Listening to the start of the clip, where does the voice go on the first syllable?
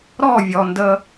falling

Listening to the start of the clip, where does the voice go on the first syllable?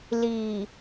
low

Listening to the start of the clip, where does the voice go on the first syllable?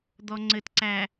low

